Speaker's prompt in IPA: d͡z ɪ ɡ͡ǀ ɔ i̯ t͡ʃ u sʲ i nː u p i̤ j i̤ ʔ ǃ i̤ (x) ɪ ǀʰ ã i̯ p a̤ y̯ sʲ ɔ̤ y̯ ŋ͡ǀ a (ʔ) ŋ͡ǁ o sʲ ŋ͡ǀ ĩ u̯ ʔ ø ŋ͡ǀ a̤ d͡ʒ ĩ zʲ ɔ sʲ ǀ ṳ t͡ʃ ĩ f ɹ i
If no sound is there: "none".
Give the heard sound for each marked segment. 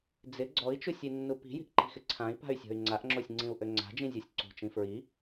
x, ʔ

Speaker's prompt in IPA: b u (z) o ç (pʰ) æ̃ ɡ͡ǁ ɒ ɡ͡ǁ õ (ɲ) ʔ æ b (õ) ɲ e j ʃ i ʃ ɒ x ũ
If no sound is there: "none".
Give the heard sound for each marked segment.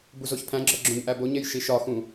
z, pʰ, ɲ, o

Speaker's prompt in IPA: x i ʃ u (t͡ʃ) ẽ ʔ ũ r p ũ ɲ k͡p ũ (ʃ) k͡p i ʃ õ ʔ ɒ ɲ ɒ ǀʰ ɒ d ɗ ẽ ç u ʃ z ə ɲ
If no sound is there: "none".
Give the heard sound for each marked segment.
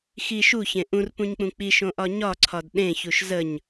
ç, none

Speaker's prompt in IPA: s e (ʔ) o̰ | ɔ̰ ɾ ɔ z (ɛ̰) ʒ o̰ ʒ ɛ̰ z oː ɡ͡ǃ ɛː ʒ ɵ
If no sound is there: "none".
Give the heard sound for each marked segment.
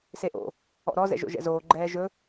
ʔ, ɛ̰

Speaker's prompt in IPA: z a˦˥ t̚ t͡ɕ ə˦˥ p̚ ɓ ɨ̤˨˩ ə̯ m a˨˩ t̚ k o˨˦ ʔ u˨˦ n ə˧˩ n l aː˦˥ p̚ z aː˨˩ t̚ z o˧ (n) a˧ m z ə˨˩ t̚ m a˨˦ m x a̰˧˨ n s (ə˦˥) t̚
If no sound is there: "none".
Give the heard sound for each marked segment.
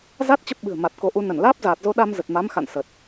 ɗ, ə˨˩

